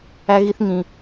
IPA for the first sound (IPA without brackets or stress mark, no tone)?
æ